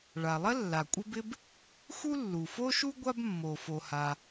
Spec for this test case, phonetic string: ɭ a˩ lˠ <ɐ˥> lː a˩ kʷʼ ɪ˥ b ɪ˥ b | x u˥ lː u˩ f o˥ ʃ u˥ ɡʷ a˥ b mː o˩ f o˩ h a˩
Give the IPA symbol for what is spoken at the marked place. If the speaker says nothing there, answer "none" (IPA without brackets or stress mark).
ɐ˥